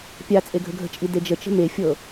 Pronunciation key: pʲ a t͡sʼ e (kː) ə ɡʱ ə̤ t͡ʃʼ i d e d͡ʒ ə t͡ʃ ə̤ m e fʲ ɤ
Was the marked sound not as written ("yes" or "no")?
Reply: yes